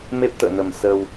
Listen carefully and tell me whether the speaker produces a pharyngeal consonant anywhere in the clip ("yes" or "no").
no